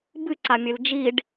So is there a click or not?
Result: yes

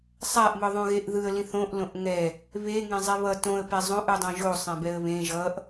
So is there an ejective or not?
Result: no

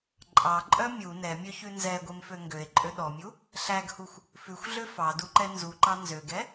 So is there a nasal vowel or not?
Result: no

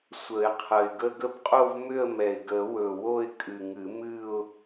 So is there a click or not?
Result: no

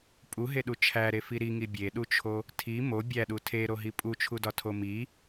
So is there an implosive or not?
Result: yes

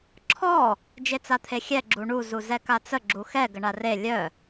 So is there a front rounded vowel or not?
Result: yes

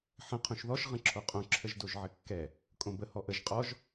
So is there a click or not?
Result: yes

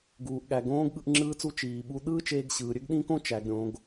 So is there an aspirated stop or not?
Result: no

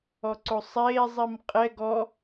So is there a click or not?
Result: yes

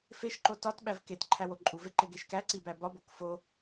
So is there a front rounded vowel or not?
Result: no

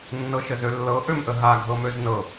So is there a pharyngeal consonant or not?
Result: no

